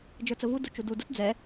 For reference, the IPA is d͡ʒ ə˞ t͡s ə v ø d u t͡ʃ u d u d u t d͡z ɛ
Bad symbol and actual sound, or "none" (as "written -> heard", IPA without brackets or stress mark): ø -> u